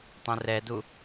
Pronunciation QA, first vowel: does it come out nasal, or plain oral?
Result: nasal